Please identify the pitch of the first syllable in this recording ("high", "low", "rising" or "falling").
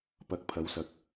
low